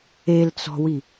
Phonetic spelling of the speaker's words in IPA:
e l t͡s ɔ̤ w i

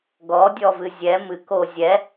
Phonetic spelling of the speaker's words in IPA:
ɡ ɔ dʲ ɔ v ɨ zʲ ɛ m ɨ k o zʲ ɛ

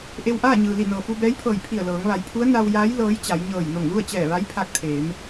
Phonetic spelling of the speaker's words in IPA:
ʔ e˧ w ʔ aː˥˨ ɲ ɯː˩ l i˧˩ n ɤː˩ f u˧ b ɛː˧˥ j pʰ ɤː˧˩ j pʰ i˧˩ ə̯ l ɤː˩˧ ŋ ʋ a˩˧ j pʰ u˧˥ ə̯ n a˧ w j aː˧˥ j l ɤː˧˥ j t͡ɕ a˩˧ j ɲ ɤː˧˩ j n o˧˩ ŋ l u˥˨ ə̯ t͡ɕ ɛː˧˩ ʋ a˧˥ j pʰ a˧ k̚ t̪ʰ eː˩˧ m

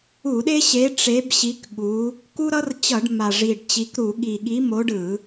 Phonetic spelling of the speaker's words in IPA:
u˧˩˧ ɗ e˦ ɕ e˨˦ ʈ͡ʂ e˨˦ b ɕ i˨˦ k ɠ u˨˦ | k u˦ ɾ ʌ˦ r t͡ɕ ʌ˧˩˧ ɖ m a˨˩ ʐ i˨˩ ɖ t͡ɕ i˨˦ k ɾ u˧˩˧ ɠ i˨˩ ɠ i˨˦ m o˨˦ ɖ ɯ˧˩˧

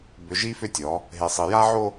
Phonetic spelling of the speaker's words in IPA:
b ʏ˨ ʒ i˦ f ʏ˦ tʲ ɔ˨˦ | ɦ e˨ sˤ i˨ j a˦ ʕ o˦

